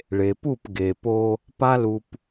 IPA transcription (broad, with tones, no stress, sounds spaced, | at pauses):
ɭ e˨ p u˦˨ p ɡ e˨ p o˦ | p a˦ l u˨ p